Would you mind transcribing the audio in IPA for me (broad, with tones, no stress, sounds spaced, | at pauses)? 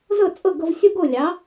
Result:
z ɤ˥˩ t͡sʼ ɤ˥˩ ɡ ɤ˧ v sʲ o˥ ɡ o˥˩ lʲ ɑ˩˥